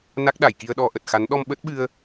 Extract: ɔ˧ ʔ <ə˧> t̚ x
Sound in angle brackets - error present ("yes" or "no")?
yes